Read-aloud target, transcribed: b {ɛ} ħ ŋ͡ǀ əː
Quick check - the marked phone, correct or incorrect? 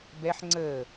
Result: correct